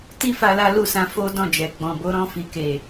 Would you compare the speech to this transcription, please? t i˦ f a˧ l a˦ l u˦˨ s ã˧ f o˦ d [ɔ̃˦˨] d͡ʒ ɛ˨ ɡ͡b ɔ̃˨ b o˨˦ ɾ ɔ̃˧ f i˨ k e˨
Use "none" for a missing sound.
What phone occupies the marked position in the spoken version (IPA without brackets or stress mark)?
ɔ̃˦˨